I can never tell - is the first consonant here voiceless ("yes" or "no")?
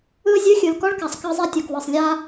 no